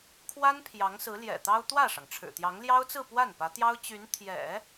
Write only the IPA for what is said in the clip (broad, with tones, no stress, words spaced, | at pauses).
kʰwa˥n pʰjɑ˧˥ŋsɹ̩˧˥ ljɛ̰˨˩t̪ɑ˥ʊ̯ t̪wä˥˩ʂɑ˩ŋ ʈ͡ʂʰɻ̩˨˩t̪jɑ˧˥ŋ ljɑ˥ʊ̯t͡sɹ̩˥˧ pwa˥˩n pä˧˥t̪jɑ˥ʊ̯t͡ɕy˧˥n t̪ʰjɛ̰˨˩˦